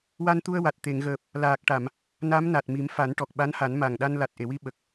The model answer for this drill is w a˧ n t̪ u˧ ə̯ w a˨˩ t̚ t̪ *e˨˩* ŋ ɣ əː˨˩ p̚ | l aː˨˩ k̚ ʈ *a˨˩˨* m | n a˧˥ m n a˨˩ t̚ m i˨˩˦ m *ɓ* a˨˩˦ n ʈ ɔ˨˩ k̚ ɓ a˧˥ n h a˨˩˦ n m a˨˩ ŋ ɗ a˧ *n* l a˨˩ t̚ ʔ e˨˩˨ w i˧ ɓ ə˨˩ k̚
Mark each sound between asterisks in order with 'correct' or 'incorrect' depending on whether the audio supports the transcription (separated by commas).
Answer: incorrect, correct, incorrect, correct